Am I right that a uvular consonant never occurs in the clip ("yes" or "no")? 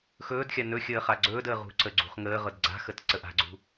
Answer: no